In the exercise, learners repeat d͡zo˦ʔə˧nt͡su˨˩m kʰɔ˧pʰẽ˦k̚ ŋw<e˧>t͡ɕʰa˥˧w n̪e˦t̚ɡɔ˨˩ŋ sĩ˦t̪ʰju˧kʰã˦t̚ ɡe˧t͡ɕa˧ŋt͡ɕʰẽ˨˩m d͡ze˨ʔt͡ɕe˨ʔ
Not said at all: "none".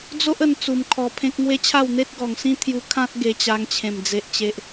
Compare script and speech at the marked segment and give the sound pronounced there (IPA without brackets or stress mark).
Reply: e˦